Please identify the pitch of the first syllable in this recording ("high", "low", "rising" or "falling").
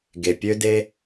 low